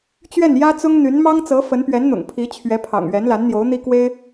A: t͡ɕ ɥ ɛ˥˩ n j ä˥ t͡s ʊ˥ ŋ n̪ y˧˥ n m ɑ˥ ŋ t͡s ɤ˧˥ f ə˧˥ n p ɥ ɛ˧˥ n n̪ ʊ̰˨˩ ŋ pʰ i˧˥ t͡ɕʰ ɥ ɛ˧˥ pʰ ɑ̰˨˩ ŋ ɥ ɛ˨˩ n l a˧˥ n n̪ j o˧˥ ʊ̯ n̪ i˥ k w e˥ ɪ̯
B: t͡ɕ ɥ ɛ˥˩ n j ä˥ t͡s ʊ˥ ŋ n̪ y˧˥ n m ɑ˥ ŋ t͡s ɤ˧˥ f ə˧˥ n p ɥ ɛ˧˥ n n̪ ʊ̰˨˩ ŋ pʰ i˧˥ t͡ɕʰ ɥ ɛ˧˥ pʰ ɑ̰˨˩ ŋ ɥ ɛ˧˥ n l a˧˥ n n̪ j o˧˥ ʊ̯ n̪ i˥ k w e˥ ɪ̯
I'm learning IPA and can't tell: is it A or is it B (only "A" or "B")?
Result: B